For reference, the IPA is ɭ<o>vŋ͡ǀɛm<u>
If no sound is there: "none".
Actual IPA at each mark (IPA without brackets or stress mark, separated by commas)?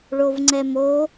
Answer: o, o